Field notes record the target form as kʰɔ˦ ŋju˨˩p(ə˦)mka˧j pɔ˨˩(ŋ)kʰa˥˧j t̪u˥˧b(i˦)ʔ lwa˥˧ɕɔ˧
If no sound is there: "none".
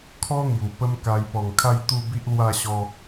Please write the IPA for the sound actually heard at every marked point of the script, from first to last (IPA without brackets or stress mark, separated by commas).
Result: ə˦, ŋ, i˦